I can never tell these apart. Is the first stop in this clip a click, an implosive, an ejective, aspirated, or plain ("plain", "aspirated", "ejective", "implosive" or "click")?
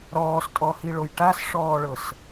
ejective